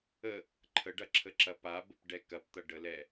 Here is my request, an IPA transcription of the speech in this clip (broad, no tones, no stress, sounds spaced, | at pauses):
ə | ǃʰ ə ɖ ɐ ǁʰ ə ǁ ɐ p a b ə p ɖ ɛ k ɐ p t̪ ɐ ɖ ə l ɛ